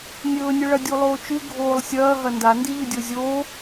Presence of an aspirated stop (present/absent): absent